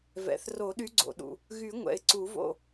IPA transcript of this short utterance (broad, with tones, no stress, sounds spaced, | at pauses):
v ɛ̰˩ θ r o˨˩˦ ɗ y˨˦ ɡ͡ǀ o̰˩ ɗ ṵ˩ | ɣ y˨˩˦ ŋʷ ɛ̰˩ ɪ̯ ǀ u˨˩˦ v o̰˦˨